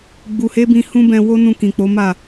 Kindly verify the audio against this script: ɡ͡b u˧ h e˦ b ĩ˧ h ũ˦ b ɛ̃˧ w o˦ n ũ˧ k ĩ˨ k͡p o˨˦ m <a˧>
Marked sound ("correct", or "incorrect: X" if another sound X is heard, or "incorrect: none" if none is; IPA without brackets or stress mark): incorrect: a˦˨